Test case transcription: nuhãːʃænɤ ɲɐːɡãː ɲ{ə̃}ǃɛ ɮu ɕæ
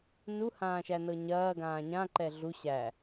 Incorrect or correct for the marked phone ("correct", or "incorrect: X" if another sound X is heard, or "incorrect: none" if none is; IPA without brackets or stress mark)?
incorrect: ã